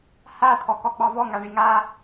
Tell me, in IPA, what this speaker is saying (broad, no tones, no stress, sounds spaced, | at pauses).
h a t̪ʰ ɔ k ɔ ɡ͡b ɑ v ɔ ŋ a ɳ i ŋ a